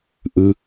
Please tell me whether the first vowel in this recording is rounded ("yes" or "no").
no